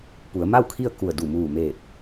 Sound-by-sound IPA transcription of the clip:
p u˩˧ ə̯ m a˥˨ w kʰ i˥˨ ə̯ k u˧˩ ə̯ d u˧˩ m uː˧˩ m eː˧˩ t̚

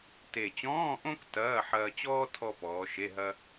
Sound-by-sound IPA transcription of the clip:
t e˨˩ t͡ɕ ɔ̃ː˧˥˧ ʔ õ˥ k t ɐː˧˥˧ ħ ɐː˧ t͡ɕ ɔː˥ tʰ ɔ˥ p ɔː˩˧ ʃ e˧˥˧ ɦ ɐ˥

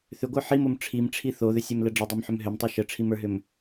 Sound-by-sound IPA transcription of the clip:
θ ʏ ɡʷ ə˞ ħ i m o m ʈ͡ʂʰ i m ʈ͡ʂʰ i θ o ð ʏ sʲ ɛ m l ə ɖ͡ʐ ə dˤ o m ħ ʏ m ɦ ʏ m tˤ i ʃ ə ʈ͡ʂʰ i m ə˞ ɦ ʏ m

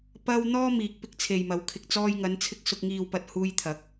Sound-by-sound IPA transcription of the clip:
p ɐ˧ w n̪ ɔː˥ m iː˨ k̚ p ɪ˥ k̚ t͡sʰ e˨ j m ɐ˨˧ w kʰ ɪ˨ k̚ t͡s ɔː˧ j ŋ ɐ˨˧ n t͡sʰ ɪ˧ k̚ s ʊ˨ k̚ ŋ iː˨ w p ɐ˨ t̚ h uː˧ j t̪ʰ ɐ˨˥ k̚

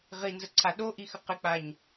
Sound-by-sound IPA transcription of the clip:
ʁ i n z ə ǀʰ a ɗ o ʔ i x ə q ɪ k͡p a ɲ

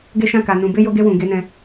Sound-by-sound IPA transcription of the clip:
ɡ e˦ ʃ ã˦˨ k a˨ n ũ˨ b e˧ j o˧ ɡ e˧ w ũ˨ ɡ e˨˦ n ɛ̃˧

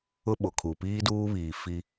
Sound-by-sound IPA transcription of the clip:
ʊ˦ ɓ o˨ kʰ u˨ p iː˦ d uː˦ β iː˨ f i˦

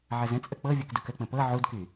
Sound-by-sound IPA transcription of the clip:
ʕ ə z ə̃ t͡sʼ ə k͡p ɤ vʲ ɤ k d u k ə k͡p ə̃ p ɤ ʕ u d k y

